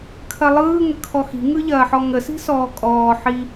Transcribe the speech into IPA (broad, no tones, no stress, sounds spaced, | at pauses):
kʰ ɐ lˠ ɯː ŋ ə kʰ ɔ x i̤ ŋ ɯ ʎ ɐː ħ ɔ ŋ ə s i̤ s ɔː kʼ ɔː ħ i